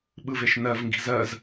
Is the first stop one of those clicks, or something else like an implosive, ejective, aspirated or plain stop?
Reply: implosive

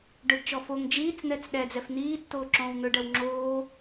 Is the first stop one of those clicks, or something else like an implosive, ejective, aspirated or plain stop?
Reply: plain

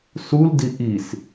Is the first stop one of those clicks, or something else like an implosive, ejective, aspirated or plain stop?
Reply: plain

